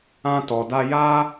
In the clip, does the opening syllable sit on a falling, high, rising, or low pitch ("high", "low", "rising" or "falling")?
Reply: high